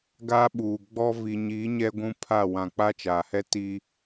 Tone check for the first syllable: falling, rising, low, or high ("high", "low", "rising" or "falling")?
high